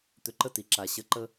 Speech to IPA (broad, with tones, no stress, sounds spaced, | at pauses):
t̪ ʏ˨ ǃ ə˦ t i˨ ǁ a˨ ɕ ə˨ ǃ ə˦